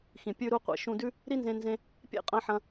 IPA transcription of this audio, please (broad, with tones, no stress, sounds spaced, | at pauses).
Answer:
x ĩ˩ pʲ ʉ˧ ɾ u˧ qʷ ḛ˧ ʃ ũ˧ d ʉ˥ | ɾ i˥ n z ẽ˧ n z ẽ˧ | pʲ ḛ˥ qʼ ɐ̃˧ ħ ɐ̃˧